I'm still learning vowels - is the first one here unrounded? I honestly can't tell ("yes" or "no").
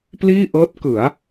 yes